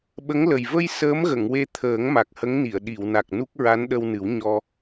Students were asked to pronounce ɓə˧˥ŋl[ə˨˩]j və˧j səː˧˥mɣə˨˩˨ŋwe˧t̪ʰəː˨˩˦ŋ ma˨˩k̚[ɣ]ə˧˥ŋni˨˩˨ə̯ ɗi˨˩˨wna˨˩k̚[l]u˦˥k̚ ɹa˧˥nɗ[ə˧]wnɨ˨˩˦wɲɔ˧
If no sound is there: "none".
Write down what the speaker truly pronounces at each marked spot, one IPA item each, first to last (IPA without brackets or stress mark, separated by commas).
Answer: ə˨˩, h, n, ə˧